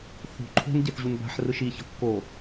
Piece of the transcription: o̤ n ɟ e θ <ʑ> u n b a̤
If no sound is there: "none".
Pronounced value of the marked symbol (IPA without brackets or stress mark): ʑ